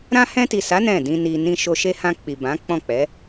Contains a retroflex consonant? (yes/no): no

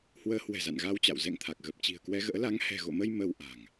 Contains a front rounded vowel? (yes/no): no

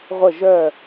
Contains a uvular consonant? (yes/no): yes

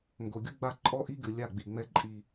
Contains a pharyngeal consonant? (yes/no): no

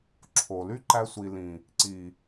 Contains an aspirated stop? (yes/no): yes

